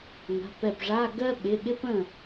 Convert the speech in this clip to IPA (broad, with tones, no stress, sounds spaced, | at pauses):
ŋ a̤˩˧˩ p ɛ˧˩ p ʐ a˧˥˧ ɡ ɜ˥ ɓ ɪ˩˧˩ ɠ ɪ˥ p ə̃˥˩